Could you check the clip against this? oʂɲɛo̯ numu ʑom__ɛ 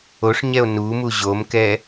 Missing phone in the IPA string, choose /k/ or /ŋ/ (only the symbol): k